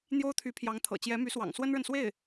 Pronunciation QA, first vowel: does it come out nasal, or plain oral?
oral